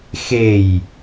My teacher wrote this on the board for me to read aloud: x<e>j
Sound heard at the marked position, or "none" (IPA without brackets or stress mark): e